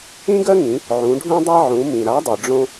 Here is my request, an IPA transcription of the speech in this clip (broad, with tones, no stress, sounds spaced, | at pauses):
ĩ˦ ɡ ɜ˦ ŋ ĩ˩˧ | ʕ ũ˩˧ ɖʱ ũ˦ dˤ a˦ ʕ ũ˩˧ m ĩ˩ ɾ a˨˥ dˤ ɨ˩ ɖ͡ʐ õ˦